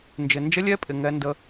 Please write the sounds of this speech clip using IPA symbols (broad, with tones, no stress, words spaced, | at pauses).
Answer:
nd͡ʒɪ˨nd͡ʒə˦˥lʲɛ˦˥pʼɪ˨ ŋɛ˦˥ndə˦˥